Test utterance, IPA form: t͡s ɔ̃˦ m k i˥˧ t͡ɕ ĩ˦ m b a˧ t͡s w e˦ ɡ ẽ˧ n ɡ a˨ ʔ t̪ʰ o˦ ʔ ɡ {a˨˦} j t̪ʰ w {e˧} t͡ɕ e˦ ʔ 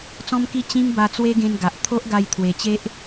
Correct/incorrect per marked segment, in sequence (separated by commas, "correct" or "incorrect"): incorrect, incorrect